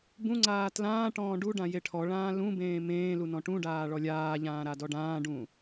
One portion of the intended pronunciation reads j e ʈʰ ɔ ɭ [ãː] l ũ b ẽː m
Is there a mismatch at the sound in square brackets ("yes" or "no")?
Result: no